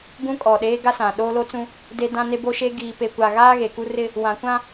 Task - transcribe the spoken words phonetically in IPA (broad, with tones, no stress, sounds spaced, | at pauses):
ɡ ũ˦ kʼ ɔ˨ ɗ eː˦ ɡ a˦ s ã˨ ɗ oː˦ l o˦ t͡s ũ˦ | d e˦ d ã˦ n e˦ b o˦ ʃ eː˦ ɡ iː˨ p e˨ kʷ a˨ ɣ aː˦ ɣ e˨ k u˦ r ɪ˦ | w ã˨ kʷ ã˦